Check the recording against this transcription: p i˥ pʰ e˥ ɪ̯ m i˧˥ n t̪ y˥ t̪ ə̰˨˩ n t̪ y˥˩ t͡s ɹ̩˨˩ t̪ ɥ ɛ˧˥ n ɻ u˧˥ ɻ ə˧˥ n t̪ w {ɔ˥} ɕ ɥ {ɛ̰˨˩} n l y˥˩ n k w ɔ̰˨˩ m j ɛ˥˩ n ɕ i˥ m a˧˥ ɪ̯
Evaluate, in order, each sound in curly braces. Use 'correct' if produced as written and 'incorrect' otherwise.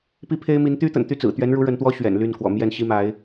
correct, correct

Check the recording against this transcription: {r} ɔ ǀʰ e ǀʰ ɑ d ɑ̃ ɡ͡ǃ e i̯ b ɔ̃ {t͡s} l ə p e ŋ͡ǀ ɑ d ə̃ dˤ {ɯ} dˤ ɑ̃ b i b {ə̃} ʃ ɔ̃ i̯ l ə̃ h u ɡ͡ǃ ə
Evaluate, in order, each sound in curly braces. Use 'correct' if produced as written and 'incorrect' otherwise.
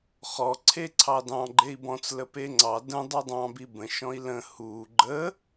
incorrect: χ, correct, incorrect: u, correct

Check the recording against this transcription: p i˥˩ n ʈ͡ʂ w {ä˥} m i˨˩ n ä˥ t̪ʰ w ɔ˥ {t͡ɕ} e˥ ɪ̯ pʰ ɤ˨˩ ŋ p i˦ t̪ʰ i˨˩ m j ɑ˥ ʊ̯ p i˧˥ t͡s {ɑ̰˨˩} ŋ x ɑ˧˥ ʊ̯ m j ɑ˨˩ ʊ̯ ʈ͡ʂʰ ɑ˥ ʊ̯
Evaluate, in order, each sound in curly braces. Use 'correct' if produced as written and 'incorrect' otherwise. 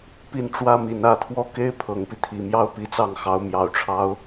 correct, incorrect: k, incorrect: ɑ˥˩

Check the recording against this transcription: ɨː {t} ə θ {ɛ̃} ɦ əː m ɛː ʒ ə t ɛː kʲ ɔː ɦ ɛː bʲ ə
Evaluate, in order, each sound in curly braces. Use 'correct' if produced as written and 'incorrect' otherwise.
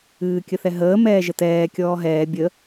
incorrect: kʲ, incorrect: ɛ

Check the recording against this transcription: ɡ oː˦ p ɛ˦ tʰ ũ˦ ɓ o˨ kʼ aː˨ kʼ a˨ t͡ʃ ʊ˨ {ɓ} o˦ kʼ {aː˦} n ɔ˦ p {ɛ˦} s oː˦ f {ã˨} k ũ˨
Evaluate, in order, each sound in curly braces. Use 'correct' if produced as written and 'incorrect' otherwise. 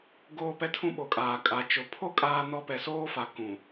incorrect: pʰ, correct, incorrect: ɛ˨, incorrect: a˨

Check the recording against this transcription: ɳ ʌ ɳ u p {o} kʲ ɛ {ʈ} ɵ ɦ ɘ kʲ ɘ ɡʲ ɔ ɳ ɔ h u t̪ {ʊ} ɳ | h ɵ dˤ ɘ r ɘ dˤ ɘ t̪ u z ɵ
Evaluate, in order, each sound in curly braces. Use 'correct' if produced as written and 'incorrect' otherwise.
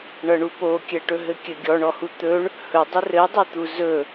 correct, correct, incorrect: ɵ

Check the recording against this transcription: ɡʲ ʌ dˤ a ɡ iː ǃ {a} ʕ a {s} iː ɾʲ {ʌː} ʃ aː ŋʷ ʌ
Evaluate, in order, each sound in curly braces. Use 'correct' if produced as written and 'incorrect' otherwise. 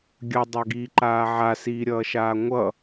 incorrect: aː, correct, correct

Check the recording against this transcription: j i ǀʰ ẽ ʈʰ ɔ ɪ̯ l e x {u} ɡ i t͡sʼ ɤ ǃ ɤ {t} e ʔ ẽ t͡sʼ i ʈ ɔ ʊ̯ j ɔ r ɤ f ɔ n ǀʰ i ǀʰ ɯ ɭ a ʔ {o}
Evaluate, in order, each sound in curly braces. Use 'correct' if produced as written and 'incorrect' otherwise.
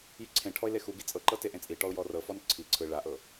correct, correct, incorrect: ɤ

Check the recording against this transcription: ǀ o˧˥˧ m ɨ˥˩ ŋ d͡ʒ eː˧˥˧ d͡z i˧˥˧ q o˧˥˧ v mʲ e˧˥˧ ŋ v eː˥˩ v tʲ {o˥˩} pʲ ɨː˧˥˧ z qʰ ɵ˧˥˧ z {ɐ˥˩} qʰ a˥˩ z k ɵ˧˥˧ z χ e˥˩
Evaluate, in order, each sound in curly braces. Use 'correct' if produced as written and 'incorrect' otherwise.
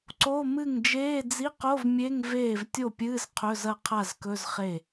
correct, correct

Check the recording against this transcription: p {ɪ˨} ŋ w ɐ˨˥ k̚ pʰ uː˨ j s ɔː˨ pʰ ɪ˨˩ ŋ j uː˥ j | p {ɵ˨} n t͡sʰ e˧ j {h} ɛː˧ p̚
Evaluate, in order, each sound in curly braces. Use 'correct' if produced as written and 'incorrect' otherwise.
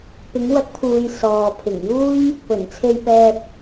incorrect: ɪ˨˧, incorrect: ɵ˨˩, incorrect: p

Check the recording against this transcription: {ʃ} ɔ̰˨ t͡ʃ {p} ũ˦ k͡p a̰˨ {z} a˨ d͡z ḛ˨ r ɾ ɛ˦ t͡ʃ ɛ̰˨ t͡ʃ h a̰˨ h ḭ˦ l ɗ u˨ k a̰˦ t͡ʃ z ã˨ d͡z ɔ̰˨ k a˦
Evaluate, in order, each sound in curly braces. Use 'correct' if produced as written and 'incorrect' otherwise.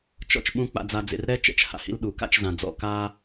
incorrect: t͡ʃ, incorrect: ɓ, incorrect: d͡z

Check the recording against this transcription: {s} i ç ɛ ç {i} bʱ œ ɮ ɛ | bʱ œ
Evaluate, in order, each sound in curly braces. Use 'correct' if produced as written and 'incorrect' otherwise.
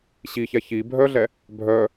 incorrect: ɕ, correct

